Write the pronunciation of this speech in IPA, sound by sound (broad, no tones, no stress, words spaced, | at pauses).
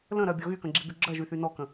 lə̃ɾɜbʲɔ ɣykə̃ɡ͡ǁiby ɡ͡ǁɜʒyθy nɔkə̃